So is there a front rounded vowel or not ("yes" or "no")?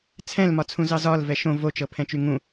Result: yes